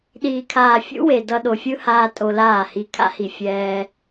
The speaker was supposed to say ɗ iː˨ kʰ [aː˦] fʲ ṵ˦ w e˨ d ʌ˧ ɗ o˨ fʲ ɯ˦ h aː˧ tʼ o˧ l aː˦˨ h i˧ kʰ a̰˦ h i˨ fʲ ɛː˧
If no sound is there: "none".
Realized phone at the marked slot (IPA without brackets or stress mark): aː˨